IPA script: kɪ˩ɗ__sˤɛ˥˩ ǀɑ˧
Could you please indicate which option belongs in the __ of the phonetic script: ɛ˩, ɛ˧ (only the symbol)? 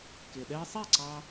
ɛ˧